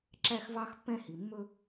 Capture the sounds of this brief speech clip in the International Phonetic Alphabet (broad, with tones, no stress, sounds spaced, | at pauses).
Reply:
ǁ æ˦ x v ɑ˦ x pː ɛ̃˦ h i˨ mː ɵ˦